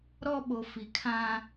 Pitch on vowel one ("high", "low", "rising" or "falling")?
high